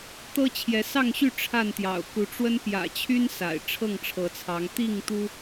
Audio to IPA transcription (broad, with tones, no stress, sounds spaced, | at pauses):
t̪ ɤ˦ t͡ɕʰ j ɛ˨˦ s ɑ˥˨ ŋ ɕ y˥˨ ʈ͡ʂʰ a˥˨ n t̪ j ɑ̰˨˩ ʊ̯ k u˨˦ ʈ͡ʂ w ə˦ n p j ä̰˨˩ t͡ɕʰ y˦ n s a̰˨˩ ɪ̯ ʈ͡ʂʰ ɤ˥˨ ŋ ʈ͡ʂʰ ɤ˨˦ t͡sʰ ɑ˨˦ ŋ t̪ i˥˨ ŋ t̪ u˦